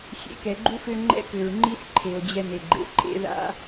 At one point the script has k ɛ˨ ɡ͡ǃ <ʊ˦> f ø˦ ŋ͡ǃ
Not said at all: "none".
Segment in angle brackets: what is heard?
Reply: u˦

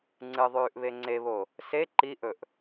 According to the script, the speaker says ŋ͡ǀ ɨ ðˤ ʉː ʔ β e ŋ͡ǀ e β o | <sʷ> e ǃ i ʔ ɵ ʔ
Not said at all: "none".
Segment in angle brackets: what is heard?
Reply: s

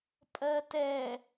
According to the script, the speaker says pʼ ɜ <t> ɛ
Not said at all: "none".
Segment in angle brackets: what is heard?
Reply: t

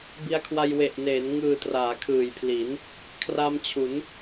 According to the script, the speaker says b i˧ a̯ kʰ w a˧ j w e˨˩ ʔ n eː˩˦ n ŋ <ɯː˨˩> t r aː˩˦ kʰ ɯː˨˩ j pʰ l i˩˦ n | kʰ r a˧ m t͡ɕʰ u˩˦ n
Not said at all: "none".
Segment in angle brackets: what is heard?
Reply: ɯː˨˩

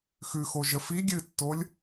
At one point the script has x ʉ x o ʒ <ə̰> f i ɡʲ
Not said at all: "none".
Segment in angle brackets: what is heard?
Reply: ə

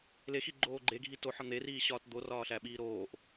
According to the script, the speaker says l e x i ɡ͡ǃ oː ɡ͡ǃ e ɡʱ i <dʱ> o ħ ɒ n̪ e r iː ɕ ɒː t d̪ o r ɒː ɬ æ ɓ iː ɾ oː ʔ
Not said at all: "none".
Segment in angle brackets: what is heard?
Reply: t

